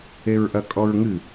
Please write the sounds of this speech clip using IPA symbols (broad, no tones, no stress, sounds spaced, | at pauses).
e ɹ ʔ ɐ kʼ ɔ ɹ ŋ ɨ